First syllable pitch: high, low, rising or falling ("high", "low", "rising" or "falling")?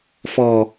low